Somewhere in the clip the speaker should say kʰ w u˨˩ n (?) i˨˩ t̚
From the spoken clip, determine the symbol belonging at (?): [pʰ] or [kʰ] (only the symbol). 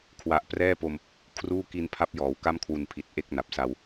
pʰ